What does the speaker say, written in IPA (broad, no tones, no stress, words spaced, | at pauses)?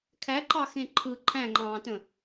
kʰæǃɑxẽ ǃʰɯ ǃʰæ̃ŋ͡ǃɑ̃ːtə̃